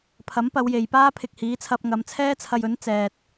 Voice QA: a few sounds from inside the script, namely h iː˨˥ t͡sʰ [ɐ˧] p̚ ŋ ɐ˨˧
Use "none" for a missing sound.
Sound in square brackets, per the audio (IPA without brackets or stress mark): ɐ˧